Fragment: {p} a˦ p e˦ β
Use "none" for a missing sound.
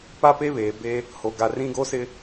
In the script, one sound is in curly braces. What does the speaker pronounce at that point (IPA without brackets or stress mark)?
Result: p